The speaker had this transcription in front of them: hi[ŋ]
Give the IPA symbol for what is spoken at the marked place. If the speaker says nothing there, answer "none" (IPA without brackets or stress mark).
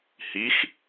x